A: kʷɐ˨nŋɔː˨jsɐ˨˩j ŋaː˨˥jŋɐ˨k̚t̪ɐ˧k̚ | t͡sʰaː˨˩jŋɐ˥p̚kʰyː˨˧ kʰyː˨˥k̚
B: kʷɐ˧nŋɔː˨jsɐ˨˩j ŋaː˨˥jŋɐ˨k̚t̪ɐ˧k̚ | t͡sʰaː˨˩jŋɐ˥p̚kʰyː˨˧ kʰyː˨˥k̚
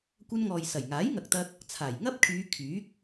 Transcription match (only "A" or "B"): B